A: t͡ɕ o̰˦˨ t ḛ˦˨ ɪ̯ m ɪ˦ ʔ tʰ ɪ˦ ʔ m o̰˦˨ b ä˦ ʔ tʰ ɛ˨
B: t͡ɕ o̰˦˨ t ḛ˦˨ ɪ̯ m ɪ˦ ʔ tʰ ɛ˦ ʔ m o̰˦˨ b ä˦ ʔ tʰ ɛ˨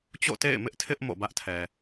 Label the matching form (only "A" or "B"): A